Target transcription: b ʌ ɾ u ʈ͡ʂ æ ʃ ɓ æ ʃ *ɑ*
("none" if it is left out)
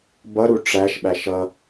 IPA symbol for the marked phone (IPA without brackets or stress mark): ʌ